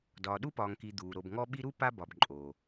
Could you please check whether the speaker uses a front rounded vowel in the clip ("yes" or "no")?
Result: no